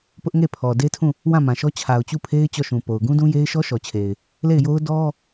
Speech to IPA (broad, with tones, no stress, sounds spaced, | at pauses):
p ʊ˦ ʔ ŋ e˦˨ pʰ ɔ˨ d e˦ tʰ ũ˦˨ | w ã˦˨ m ã˨ ʃ ɔ˦ t͡ɕʰ a˨ ʊ̯ t͡ɕ u˦˨ pʰ e˦ ɪ̯ t͡ɕ ɔ˦˨ ʃ ũ˨ p o˨ ʊ̯ ɡ ũ˦ d ũ˦ j e˦ ɪ̯ ʃ ɔ˦ ʃ ɔ˨ t͡ɕʰ e˨ ɪ̯ | l e˦˨ ɪ̯ j o˦ ʊ̯ d ɔ˦